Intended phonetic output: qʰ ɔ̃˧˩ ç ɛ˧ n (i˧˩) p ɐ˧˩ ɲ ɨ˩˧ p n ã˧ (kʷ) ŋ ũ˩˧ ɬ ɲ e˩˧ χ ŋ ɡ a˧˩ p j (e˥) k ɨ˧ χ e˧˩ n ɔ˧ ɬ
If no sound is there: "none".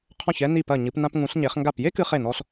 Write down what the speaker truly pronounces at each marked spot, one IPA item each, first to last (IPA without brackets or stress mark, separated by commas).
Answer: i˧˩, p, e˥